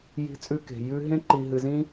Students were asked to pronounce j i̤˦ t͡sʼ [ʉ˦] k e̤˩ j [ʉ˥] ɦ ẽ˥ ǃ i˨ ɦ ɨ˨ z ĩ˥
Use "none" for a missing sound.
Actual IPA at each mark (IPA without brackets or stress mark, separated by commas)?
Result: ʉ˦, ʉ˥